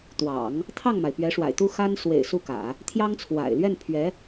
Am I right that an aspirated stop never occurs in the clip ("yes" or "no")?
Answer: no